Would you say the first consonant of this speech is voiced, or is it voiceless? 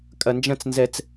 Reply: voiceless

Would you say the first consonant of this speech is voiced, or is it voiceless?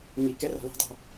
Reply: voiced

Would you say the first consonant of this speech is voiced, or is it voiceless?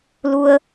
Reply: voiced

